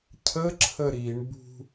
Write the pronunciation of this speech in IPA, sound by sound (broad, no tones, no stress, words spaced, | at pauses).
cʰəǁʰə ɾiɳbṳ